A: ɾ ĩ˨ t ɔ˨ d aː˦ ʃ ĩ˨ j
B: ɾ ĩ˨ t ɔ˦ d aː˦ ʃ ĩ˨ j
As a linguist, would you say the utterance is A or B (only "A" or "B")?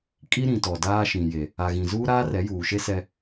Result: A